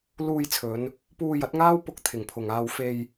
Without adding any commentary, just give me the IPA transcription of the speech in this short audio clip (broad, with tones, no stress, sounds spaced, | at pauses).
l uː˧ j t͡sʰ ɵ˨˧ n | p uː˧ j ɐ˨˥ t̚ ŋ aː˥ w p ʊ˧ k̚ t̪ʰ ɪ˨˩ ŋ pʰ ʊ˨˩ ŋ aː˧ w f e˧ j